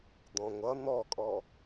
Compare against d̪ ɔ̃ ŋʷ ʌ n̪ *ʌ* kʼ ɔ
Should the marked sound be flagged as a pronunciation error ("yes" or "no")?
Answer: yes